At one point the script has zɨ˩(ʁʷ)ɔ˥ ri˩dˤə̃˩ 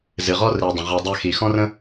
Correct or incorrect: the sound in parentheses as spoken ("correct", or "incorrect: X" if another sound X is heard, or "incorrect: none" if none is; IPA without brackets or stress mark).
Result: incorrect: ʁ